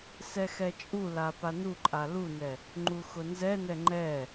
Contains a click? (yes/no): yes